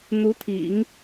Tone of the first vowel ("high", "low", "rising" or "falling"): rising